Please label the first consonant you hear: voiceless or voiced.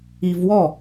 voiced